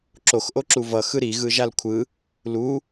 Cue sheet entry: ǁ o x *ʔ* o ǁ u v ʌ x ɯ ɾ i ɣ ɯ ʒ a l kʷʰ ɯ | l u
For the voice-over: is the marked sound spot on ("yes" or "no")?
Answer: yes